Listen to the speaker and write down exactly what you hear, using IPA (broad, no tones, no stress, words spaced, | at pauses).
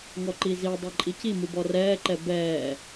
ŋɔǃizi dˤɛǃʼici mubɔrɛːǃɛ bɛː